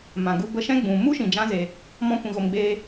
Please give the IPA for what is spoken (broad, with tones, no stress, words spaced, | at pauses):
mã˨ɡu˧ bə˧ʃɛ̃˦ɡ͡bũ˨ mu˦ʃĩ˨d͡ʒã˧ ze˧ | mɔ̃˦kʷĩ˧ɣo˧mɡ͡beː˦